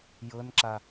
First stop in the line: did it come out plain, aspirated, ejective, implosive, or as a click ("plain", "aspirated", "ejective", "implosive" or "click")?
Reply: click